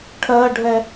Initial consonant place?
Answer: retroflex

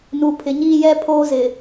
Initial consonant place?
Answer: alveolar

